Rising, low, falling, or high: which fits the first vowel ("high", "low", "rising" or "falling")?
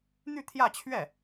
falling